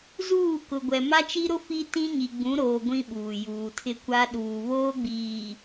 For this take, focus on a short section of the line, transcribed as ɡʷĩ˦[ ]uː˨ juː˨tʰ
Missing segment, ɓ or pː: ɓ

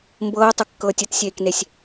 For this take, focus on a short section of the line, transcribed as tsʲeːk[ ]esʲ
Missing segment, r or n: n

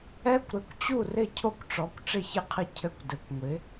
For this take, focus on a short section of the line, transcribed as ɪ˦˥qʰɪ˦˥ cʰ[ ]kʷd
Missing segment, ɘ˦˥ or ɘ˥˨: ɘ˥˨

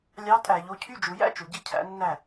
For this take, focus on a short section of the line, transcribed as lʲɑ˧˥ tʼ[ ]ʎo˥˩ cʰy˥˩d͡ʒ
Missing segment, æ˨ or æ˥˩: æ˨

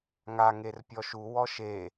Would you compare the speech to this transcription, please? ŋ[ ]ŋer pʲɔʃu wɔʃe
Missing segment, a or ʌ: a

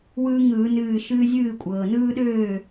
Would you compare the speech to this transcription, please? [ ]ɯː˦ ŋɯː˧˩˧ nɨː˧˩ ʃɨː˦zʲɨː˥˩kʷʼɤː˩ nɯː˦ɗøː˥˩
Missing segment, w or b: w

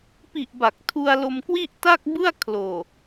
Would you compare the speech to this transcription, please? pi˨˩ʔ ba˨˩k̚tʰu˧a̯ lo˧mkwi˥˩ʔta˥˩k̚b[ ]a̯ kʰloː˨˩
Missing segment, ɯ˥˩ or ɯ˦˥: ɯ˥˩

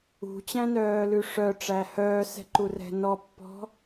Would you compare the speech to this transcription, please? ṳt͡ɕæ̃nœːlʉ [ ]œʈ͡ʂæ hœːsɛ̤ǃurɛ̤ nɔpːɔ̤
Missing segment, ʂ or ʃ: ʂ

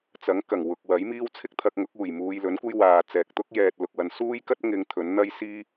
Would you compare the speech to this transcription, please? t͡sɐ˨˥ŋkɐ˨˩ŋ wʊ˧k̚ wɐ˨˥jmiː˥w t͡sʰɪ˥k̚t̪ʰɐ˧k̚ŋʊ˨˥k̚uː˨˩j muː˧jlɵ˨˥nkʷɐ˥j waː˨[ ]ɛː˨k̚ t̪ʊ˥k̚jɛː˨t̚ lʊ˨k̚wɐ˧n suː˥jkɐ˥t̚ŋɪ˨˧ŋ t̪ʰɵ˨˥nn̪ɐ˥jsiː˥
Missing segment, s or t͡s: t͡s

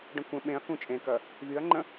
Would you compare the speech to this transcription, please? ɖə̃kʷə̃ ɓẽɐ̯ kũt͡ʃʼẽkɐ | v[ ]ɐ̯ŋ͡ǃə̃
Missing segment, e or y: y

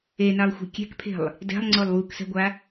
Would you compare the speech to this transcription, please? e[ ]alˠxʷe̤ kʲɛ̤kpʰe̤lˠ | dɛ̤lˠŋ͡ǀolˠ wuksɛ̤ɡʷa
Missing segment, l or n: n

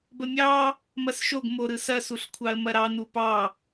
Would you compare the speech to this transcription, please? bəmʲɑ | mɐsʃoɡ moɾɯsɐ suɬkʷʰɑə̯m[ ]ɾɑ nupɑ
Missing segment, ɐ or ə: ɐ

